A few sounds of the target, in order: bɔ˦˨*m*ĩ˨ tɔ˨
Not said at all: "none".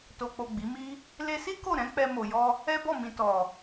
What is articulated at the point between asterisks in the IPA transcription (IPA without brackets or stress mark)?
m